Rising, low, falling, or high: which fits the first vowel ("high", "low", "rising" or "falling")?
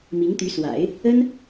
rising